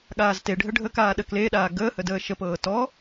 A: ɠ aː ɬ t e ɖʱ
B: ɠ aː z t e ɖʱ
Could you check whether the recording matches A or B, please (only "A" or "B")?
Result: B